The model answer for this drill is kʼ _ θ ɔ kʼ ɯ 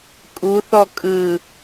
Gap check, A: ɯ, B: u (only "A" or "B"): B